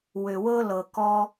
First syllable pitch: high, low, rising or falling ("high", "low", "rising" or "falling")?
low